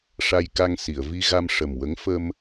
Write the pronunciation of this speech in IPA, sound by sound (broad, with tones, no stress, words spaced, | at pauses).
ʂa˧jka˧ŋ si˨˩˨ə̯ vi˧ɣa˧mʂə˨˩mwə˧˥ŋ fə˧m